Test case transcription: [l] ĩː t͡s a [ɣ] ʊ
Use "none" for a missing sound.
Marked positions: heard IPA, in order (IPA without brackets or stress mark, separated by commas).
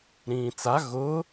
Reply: ɾ, ɣ